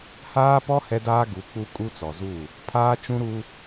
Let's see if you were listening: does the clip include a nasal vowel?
yes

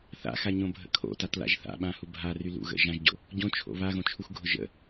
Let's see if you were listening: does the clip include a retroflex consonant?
no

